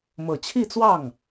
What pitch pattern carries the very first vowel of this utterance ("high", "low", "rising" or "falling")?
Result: low